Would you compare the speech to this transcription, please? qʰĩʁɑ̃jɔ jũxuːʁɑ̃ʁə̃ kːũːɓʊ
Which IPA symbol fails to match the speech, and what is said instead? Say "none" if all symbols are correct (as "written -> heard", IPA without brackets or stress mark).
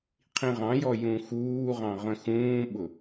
kː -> x